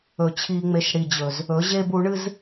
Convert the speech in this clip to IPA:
ɵ˨ t͡ɕʰ i˧ ŋ͡m e˧ ʃ ɽ i˨ d͡ʑ ɵ˨ z | ɵ˨˦ ʑ e˦ b u˨˦ ɳ ɨ˦ z

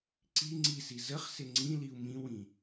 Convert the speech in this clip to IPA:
ǀ i ŋ͡ǀ i s i z ə χ s ɪ ŋ͡ǀ ĩ l i u̯ m ĩ w ĩ

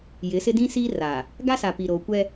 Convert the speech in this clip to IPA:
j ɪ˨˦ s ɪ˦ d ĩ˦ s iː˦ r a˨ | ɡ a˦ s a˨ p i˨ ɾ oː˨ kʷ ɛ˦

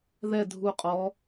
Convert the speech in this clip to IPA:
ð ɛ dʱ u qʼ ɔ

